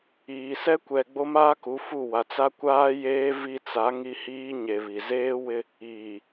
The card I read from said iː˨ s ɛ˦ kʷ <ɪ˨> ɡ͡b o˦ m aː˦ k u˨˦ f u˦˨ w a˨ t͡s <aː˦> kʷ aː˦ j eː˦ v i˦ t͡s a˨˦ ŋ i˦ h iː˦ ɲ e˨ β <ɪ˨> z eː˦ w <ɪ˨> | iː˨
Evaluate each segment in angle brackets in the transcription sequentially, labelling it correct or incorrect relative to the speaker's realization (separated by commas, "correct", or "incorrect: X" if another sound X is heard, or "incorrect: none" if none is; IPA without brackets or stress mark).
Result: incorrect: ɛ˨, incorrect: a˦, incorrect: i˨, incorrect: ɪ˦